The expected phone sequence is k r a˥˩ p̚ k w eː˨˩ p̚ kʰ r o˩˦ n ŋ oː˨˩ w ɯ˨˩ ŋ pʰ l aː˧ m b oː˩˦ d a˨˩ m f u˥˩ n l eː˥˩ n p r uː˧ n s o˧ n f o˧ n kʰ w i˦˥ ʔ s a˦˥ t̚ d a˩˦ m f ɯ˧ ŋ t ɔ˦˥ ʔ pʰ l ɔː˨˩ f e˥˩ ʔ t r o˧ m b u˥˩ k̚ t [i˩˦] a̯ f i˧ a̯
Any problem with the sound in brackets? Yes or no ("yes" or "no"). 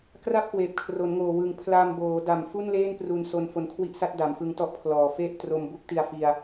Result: yes